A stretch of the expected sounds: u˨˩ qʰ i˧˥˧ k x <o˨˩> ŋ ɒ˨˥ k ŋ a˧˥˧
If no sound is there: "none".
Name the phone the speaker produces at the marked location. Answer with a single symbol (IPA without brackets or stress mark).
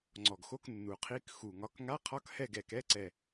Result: u˨˩